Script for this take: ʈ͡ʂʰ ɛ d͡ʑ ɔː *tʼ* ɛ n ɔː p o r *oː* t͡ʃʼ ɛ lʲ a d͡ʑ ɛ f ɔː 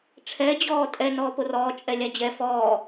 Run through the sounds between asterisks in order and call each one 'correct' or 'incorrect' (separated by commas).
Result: correct, incorrect